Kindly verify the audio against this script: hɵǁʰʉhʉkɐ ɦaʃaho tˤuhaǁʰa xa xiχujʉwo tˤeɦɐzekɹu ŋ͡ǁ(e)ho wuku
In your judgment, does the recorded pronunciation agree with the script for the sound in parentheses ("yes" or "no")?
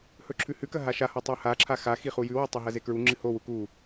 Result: no